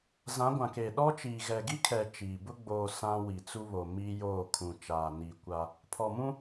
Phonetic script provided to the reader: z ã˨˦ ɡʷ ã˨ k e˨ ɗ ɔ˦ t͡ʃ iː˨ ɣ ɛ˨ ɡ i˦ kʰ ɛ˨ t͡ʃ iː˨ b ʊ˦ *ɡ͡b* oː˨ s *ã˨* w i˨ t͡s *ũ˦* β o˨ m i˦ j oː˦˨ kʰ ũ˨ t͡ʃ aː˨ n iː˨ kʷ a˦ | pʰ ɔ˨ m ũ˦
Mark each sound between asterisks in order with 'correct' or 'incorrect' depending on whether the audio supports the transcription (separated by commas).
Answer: correct, incorrect, incorrect